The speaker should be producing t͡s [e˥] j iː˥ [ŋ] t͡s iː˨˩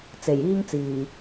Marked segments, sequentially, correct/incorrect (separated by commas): incorrect, correct